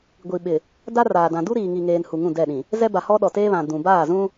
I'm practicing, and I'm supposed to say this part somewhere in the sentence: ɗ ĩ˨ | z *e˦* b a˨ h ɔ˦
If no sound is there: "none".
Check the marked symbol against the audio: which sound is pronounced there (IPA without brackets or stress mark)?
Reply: ɛ˦